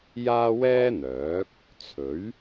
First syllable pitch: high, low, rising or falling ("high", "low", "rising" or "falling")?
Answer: high